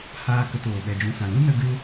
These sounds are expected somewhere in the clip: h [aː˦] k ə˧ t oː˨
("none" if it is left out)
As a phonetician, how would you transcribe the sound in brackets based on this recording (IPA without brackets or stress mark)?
aː˦